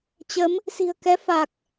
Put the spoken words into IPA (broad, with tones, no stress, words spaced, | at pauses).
t͡ɕə˨˦m | si̤˨˩ə̯kɛ˨˦ fa˨˩k̚